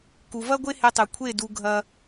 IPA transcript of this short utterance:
k u˨ v ɐ˦ ɡʷ e˦ h e˧ tˤ ʉ˨ kʷʰ e˦˨ d u˧ ɡʱ ɐ˦

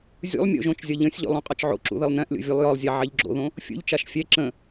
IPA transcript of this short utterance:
zʲ ṵ lˠ mʲ o̰ ʒ õ t͡ʃ zʲ ɒ ʎ ə̃ sʲ ʎ o̰ lˠ õ qʼ ɒ t͡ʃ ʕ o̰ ǁ ṵ ð ə lˠ n ɛ̃ ʔ lʲ o̰ vʲ u lˠ j ɒ lˠ zʲ a ʕ ɛ ʎ ɡ͡ǁ o̰ ð õ | fʲ ṵ ʎ t͡ʃ a ʃ fʲ ɛ ǁ ə̃

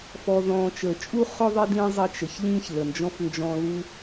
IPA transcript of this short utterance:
f ɔ˨ ð ɔ̃ː˨ t͡ʃ əː˩ t͡ʃʼ u˥ χ ʊ˥ ðˤ ɪ˥ d ĩ˦ zˤ ɪ˦ t͡ʃ ə˩ ç ʎ ĩː˥ ç l ə˩ n d͡ʒ ɔ̃˥ f n d͡ʒ ɔ̃˦ l u˦

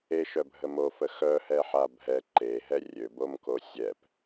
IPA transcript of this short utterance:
e ʃ œ bʱ ə m o f ə x œ h ɛ ħ a bʱ ɛ ǃ e ɦ ɛ rʲ ø b o m k o sʲ ɛ p

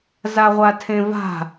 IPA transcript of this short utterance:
z a ʁʷ a tʰ ẽ v a̤

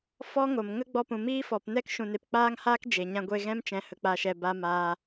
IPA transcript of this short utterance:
f ɔ˦ ŋ o˨ m ŋ ə˦ ɡ͡b ɔ˧ p ũ˨ m iː˦ f ɔ˨ p n ɛ˦ k ʃ ũ˨ n e˨ p k͡p aː˦ ŋ h aː˦ k d͡ʒ e˨ ɲ ã˧ ɡʷ e˧ ɣ ɛ̃˦ m t͡ʃ ɛ̃˨˦ h ə˧ k͡p a˧ ʃ ɛ˧ b a˧ m aː˧

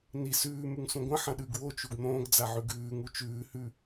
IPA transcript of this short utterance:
n i s ʉː m ʉ ŋ s ũ ɡʷ ɐ̃ ħ ɐ̃ ɗ ʉ ɡ w o t͡ʃ u ɡ n̪ õː ɡ d͡z a ʕ ʉ ɡ ʉː ŋ u t͡ʃ ʉː h ʉ

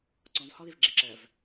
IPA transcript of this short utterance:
ǀ ɔ̃ v h ɔ ð ɪ v ɡ͡ǁ ɪ ǁ ɜ v

